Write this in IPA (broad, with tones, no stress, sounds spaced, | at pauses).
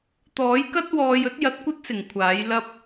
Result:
t̪ ɔː˨˥ j k ɐ˥ t̚ w ɔː˧ j ɵ˥ t̚ j ɐ˧ t̚ kʷ ɐ˥ t̚ s ɪ˨˩ ŋ kʷʰ aː˨˥ j l ɐ˥ p̚